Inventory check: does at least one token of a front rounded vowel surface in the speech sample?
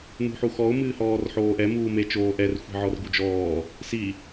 no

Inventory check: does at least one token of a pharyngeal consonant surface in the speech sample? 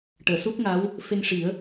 no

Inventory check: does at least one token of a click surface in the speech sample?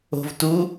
no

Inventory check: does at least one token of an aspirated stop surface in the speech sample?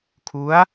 yes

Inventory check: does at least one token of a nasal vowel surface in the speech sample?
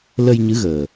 no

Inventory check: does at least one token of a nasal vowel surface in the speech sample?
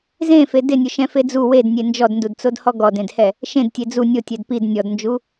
yes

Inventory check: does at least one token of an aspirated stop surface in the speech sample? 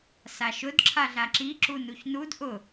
yes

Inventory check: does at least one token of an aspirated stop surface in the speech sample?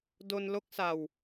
no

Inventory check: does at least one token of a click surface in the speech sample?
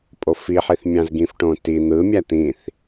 no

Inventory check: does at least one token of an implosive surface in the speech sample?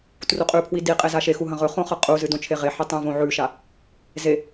no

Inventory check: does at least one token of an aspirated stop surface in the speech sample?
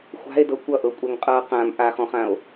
no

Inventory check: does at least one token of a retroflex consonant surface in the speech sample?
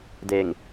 no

